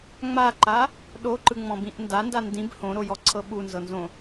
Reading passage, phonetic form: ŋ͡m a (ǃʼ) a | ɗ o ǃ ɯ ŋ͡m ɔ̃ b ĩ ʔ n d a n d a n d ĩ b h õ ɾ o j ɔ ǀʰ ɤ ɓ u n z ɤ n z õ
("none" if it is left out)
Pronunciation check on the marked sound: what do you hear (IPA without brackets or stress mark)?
ǃ